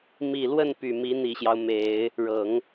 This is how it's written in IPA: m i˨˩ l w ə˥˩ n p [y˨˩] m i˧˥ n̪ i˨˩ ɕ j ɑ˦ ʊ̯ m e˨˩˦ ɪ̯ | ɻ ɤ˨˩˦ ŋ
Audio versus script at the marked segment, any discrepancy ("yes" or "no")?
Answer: no